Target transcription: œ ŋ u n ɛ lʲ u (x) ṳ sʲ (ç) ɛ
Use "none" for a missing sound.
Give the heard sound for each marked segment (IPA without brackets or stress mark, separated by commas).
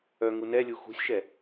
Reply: x, ʃ